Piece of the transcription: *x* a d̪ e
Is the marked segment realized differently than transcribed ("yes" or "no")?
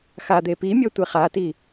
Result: no